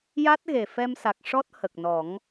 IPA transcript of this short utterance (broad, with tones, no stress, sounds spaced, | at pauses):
j a˦˥ t̚ ɣ e˨˩ f ɛ˧ m s a˨˩ k̚ ʂ ɔ˦˥ t̚ h ə˨˩ k̚ n ɔ˨˩˦ ŋ